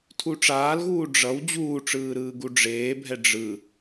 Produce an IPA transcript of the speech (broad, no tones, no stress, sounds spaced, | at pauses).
tʰ u ʈ͡ʂ aː l ɣ uː ɖ͡ʐ ʌ w d͡ʑ uː ʈ͡ʂ ɯː ɾ ɯː ɡ u ɖ͡ʐ eː bʱ ɛ ɖ͡ʐ ɯ